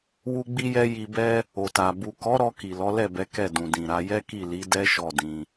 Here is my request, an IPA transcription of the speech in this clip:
w u˧ ɡ͡b i˧ j ɛ˧ j i˧ b ɛ˦ | o˨ t a˨ b u˨ k ɔ˨˦ ɾ ɔ˧ k i˨ l ɔ˨˦ l ɛ˦˨ b ɛ˨˦ k ɛ˦˨ d ũ˨ d ĩ˨ ɾ a˨˦ j ɛ˦ k i˦˨ l i˨˦ d ɛ˦ ʃ ɔ˦˨ d ĩ˧

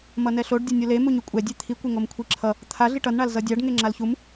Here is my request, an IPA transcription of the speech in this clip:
m ʌ n ɛ ɬ o ɖ dʲ a nʲ o l e m u ɲ u kʷʼ ɛ dʲ e t̪ʰ i kʷ e ŋ o m kʷʰ i ǁʰ ʌ | t̪ʰ a ɮ i ʈ ʌ n ɳ a l z ʌ dʲ a ɖ ŋ e ŋ͡ǁ a l ç u m

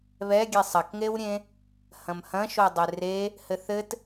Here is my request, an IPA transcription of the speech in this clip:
β ɛ ɡʲ e sˤ ɐ k ŋ e w ɾʲ ẽ | h ɐ̃ m h ɐ̃ ʃ o dˤ e r e | h ɘ θ ɘ t

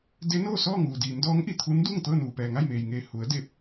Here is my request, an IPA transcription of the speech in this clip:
d e˧˥ n oː˥˨ s ɔː˥˨ ŋ uː˩ d iː˩˧ m d ɔː˧˥ ŋ ʔ i˩˧ t̪ʰ u˧˥ n d uː˥˨ ŋ t̪ ɤː˥˨ n uː˩ p ɛː˩ ŋ a˥˨ j m eː˩ j ŋ eː˧˩ h u˩˧ ə̯ d e˧˩ p̚

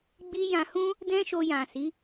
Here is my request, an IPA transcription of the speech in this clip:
ɡ͡b i˦ j ã˧ h ũ˦ | d ɛ̃˦ ʃ o˧ j ã˨ s i˨˦

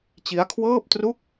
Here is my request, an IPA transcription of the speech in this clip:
t͡ɕ i˦˥ a̯ kʰ w ɤː˥˩ p̚ t r u˥˩ k̚

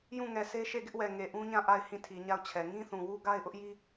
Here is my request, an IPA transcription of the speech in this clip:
j ũ˦˨ ŋ ɛ˨ sʰ e˦ ʃ e˦˨ ɡ ɪ˦ ʔ w ɛ˨ ŋ e˨ ʔ ũ˦ ɲ ã˦˨ ʔ a˦˨ ɪ̯ h ĩ˦˨ tʰ i˨ ɲ a˦˨ ʊ̯ t͡ɕʰ ɛ˨ ŋ ĩ˦ θ ũ˨ w u˦ ɡ a˦ ɪ̯ ʔ ʊ˦ ʔ j i˦

